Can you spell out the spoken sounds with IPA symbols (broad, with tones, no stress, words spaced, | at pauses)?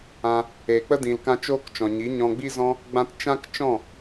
ã˧ | eː˨ k͡pə˦ dĩ˨lkã˧ t͡ʃoː˦kt͡ʃɔ̃˨ɲi˨˦ ɲɔ̃˧ɡ͡bi˦zɔ̃˦ | ɡ͡bã˦t t͡ʃã˦k t͡ʃɔ̃˦˨